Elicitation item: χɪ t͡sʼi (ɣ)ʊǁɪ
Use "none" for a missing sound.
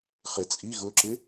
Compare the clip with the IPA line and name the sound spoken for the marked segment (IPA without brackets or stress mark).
ɣ